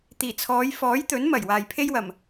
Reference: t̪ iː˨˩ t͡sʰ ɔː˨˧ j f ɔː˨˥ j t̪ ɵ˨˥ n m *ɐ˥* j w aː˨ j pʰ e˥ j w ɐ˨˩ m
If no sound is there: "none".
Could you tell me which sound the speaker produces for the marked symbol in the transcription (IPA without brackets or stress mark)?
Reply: ɐ˨˩